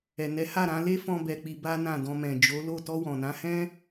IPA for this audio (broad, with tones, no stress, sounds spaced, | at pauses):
ɛ˨ n ɛ˨˦ h a˦˨ ɾ ã˧ l e˦ f ɔ̃˦ b ɛ˧ k͡p i˧ b a˦ n ã˦˨ d ɔ̃˧ m ɛ̃˨ d͡ʒ o˨˦ l o˦˨ t ɔ˧ w ɔ̃˨ n ã˨˦ h ɛ̃˦